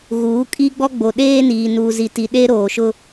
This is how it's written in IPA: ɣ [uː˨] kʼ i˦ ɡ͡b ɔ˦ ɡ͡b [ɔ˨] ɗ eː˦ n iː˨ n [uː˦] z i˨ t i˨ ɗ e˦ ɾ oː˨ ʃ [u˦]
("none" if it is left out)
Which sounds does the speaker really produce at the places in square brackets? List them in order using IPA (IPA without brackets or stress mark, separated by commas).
uː˨˦, o˨, uː˨, ʊ˦